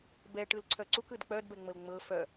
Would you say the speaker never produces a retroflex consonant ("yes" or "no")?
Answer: no